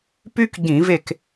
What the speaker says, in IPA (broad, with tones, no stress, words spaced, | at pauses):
py˥kɟĩ˧˩˧ve˦˨k